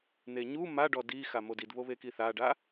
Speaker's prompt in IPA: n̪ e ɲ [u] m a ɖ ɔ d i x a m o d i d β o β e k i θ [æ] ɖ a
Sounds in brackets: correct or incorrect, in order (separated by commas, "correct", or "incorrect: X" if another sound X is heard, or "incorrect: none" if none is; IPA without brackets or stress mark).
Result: correct, incorrect: a